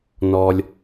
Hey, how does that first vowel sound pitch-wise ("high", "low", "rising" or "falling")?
low